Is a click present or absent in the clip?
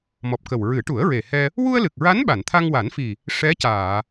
absent